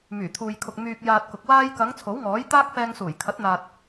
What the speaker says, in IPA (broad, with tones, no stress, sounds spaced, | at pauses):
m yː˨˩ t̪ʰ uː˨ j kʰ ʊ˨ k̚ m yː˧ k̚ j aː˧ t̚ k ʊ˨ k̚ w aː˧ j k ɐ˨˧ ŋ t͡sʰ o˨˥ w ŋ ɔː˨˥ j t̪ aː˥ k̚ f ɛː˧ ŋ s uː˨˩ j kʰ ɐ˨˥ t̚ n̪ aː˨ t̚